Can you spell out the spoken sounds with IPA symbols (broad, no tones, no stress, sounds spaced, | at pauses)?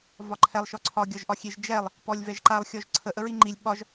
v ɒ ǃʰ ɛ lˠ ʃ ɔ ǀʰ ɒ ɡʲ ɒ ʒ ʔ ɒ xʲ e ʒ d͡ʒ ɛ lˠ | p ɔ lʲ v ɛ ʒ ǃ a lˠ xʲ ɔ ʒ ǀʰ ə ʔ ə ɹ i ŋ͡ǃ i lʲ ɓ ɒ ʒ